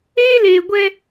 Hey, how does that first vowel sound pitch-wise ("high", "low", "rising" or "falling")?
high